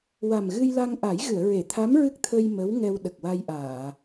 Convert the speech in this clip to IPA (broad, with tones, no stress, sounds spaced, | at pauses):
w a˨˩ m ɣ ɨ˧ j l a˧ ŋ ʔ a˨˩˦ j ɣ ɨ˨˩˨ ə̯ ɹ e˨˩˨ t̪ʰ a˧˥ m ɹ ɨ˦˥ k̚ t̪ʰ ə˧ j m ə˧˥ w ŋ ɛ˧ w ɗ ə˨˩ k̚ w a˧ j ʔ aː˨˩˨